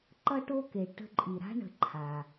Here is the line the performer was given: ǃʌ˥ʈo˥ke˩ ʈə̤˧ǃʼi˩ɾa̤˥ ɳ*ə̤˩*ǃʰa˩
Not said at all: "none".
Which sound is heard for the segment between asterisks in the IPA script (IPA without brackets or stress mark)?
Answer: ə̤˧